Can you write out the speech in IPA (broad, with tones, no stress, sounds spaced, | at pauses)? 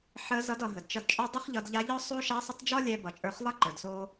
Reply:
ħ ə˧˥ z ʌ˧˥ d ʌ˩˧ ɦ ə˩ d t͡ʃ ʌ˧ d t͡ʃʼ ɒ˥ dˤ ʌ˥ χ ʎ ʌ˧ d ʎ a˧˥ ʎ ɒ˥ sˤ o˥ ʃ a˧˥ sˤ ə˧˥ tˤ d͡ʒ ɒ˥ lʲ ɛ˧ b ʌ˩˧ t͡ʃʼ ə˞˧ χ lˠ ʌ˥ ǃ ə˞˩ d s o˧